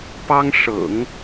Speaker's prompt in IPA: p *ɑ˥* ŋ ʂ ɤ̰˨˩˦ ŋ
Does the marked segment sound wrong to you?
no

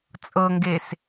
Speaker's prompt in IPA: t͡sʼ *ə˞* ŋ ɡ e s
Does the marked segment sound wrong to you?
yes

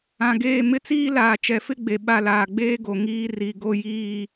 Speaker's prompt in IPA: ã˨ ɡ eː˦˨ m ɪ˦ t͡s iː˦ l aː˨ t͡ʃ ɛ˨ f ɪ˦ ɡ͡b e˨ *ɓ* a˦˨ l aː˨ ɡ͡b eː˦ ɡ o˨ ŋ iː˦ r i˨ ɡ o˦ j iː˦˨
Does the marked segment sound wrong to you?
no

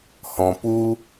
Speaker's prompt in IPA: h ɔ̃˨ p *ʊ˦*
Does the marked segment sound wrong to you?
yes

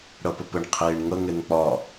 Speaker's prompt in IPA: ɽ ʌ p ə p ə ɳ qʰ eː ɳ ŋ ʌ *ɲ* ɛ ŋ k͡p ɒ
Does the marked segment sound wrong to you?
yes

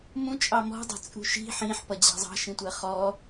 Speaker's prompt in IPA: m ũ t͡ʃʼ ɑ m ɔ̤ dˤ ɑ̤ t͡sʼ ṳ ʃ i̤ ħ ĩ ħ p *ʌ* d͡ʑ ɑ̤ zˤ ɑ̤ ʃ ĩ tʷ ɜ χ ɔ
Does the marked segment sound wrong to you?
no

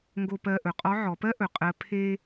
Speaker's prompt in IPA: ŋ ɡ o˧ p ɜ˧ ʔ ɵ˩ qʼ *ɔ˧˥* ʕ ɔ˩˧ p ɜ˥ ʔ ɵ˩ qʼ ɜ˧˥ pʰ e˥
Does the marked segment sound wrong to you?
no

